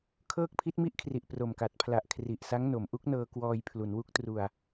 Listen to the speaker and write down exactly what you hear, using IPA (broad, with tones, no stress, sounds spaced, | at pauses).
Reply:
kʰ ɤː˥˩ k̚ pʰ i˦˥ t̚ m i˥˩ ʔ kʰ r i˨˩ ʔ p r o˨˩ m k a˨˩ t̚ pʰ l a˨˩ ʔ kʰ r i˨˩ ʔ s a˦˥ ŋ n o˩˦ m ʔ u˦˥ k̚ n ɤː˧ k w ɔː˧ j pʰ l u˩˦ n w u˦˥ k̚ t r u˧ a̯